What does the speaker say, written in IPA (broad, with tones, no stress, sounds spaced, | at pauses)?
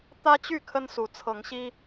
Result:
t̪ ä˦ t͡ɕ y˥˨ kʰ ə˦ n s u˨˦ t͡sʰ ɤ˨˦ ŋ ɕ i˦